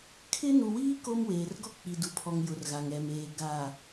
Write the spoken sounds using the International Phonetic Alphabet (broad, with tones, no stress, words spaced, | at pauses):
kʰɪ˦ nu˨wiː˦ ko˦m weː˨rɡɔ˦k͡pi˨ du˨pʰɔ˨ŋjʊ˨r ɣa˨ŋɛ˨meː˨ ɡa˨